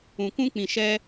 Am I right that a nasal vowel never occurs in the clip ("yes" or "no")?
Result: no